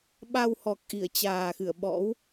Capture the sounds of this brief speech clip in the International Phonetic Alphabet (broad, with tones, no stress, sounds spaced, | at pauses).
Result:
ɓ a˧ w h ɔ˨˩ k̚ ʔ i˧˩ ə̯ t͡ɕ aː˨˩ x ɨ˧˩ ə̯ ɓ ɔ̰˧˥ w